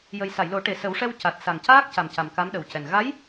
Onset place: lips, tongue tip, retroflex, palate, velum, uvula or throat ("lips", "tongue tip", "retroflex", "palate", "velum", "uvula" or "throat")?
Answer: palate